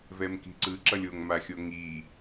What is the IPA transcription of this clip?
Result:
v ɛ m k i̤ ǀ ɯ ǁ ʌ lʲ o ŋ m a xʲ o ŋ i

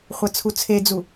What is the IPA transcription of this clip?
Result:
χʷ ɐ t͡sʰ u t͡sʰ e d͡z u

